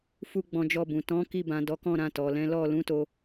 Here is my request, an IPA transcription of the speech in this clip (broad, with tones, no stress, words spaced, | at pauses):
fu˧ ɡ͡bɔ̃˧d͡ʒɔ˧bũ˨ tɔ̃˨˦ki˧bã˨ dɔ˨˦kɔ̃˦˨ɾã˧ tɔ˨lɛ̃˨˦ lɔ˦˨ lũ˨˦to˧